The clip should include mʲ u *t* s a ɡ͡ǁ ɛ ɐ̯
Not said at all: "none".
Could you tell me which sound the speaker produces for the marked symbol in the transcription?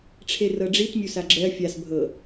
none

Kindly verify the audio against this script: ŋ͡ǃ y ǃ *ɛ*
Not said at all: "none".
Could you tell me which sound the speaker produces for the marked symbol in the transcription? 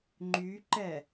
ɛ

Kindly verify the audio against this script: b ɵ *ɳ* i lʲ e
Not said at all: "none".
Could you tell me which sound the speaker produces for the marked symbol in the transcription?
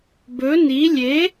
n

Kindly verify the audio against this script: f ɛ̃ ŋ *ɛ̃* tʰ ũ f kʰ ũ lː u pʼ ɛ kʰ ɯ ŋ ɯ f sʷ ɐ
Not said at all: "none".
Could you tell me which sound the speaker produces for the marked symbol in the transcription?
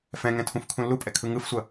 ɛ̃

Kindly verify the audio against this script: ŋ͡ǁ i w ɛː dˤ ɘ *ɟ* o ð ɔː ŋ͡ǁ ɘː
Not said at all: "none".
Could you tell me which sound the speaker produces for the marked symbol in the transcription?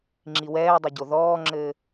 ɟ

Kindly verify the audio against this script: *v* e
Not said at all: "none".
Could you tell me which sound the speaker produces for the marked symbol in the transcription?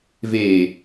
v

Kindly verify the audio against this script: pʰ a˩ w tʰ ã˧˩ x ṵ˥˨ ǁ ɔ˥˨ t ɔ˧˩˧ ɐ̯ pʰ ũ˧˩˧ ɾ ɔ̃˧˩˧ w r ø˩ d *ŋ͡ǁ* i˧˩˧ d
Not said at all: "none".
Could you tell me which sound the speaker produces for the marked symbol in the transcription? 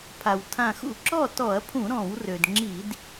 ŋ͡ǁ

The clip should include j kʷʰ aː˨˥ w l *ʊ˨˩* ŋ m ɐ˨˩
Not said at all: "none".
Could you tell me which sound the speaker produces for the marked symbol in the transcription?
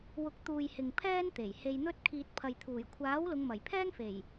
ʊ˨˧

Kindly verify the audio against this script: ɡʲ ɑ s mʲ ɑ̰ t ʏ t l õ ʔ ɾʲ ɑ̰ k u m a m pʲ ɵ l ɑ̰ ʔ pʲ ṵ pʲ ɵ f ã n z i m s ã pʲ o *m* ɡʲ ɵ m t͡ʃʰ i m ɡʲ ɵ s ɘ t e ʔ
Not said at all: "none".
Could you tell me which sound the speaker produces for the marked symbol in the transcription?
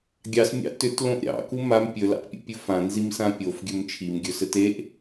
f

